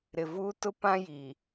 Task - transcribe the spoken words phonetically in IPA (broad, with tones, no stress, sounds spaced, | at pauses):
ɾ ɪ˨ v uː˦ t ʊ˦ p ã˦ j i˨